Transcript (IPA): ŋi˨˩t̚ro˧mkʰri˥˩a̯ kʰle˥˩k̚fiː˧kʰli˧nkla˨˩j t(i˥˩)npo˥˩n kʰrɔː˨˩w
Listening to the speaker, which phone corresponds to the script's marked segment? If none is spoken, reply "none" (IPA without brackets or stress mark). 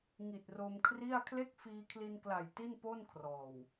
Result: i˥˩